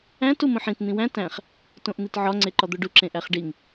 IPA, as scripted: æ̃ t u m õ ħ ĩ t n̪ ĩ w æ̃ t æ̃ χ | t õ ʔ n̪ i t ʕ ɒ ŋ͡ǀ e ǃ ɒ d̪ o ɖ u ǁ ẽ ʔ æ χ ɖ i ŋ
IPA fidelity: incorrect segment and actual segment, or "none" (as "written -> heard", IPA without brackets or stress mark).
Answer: none